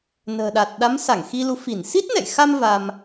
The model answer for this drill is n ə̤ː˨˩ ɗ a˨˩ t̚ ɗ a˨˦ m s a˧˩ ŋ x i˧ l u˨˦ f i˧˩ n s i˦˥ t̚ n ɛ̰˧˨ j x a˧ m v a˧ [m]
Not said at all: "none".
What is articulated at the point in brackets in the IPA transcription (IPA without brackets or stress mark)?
m